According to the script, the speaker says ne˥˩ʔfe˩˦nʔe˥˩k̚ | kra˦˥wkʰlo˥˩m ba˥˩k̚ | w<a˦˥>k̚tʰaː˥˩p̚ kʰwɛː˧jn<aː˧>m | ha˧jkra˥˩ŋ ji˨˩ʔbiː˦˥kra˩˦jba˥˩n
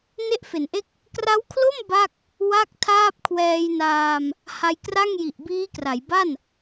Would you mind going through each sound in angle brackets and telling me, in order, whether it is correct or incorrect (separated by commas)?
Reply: incorrect, correct